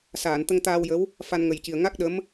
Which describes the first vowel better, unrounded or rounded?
unrounded